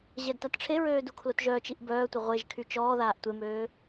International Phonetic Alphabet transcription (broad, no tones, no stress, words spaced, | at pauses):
ʑɛdtatʈ͡ʂʰeɹøː dukʰlotʒœːt͡ʃiʔ bœːtʷə ʁʷeʒkʰy t͡ʃɔː ðaːʔtʷemøː